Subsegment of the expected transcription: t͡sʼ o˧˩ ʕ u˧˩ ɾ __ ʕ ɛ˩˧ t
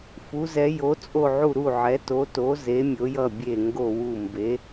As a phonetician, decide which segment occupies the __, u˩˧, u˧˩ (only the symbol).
u˧˩